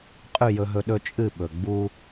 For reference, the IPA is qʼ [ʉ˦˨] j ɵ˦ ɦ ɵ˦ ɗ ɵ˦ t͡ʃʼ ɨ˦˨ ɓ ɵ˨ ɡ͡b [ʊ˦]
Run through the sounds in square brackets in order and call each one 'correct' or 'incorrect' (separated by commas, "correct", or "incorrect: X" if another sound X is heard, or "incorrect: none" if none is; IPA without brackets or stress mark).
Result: correct, incorrect: u˦